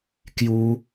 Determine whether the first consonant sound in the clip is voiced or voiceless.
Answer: voiceless